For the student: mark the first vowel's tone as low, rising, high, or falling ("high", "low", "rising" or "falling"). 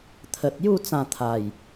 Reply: low